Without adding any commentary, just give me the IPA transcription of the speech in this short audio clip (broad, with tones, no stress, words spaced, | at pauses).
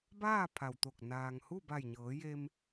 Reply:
baː˥˨ pʰa˩wt̪o˧˩k̚ naː˩ŋhu˥˨ba˧˩jɲɤː˩˧ je˧m